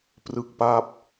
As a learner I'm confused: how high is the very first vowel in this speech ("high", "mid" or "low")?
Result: high